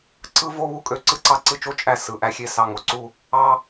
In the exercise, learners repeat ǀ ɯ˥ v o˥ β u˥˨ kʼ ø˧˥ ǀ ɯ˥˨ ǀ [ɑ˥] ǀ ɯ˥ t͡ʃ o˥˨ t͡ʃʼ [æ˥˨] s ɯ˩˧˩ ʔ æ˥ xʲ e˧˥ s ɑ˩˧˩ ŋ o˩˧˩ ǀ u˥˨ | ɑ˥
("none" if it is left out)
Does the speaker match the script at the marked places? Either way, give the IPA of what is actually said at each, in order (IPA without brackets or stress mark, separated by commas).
ɑ˥, æ˥˨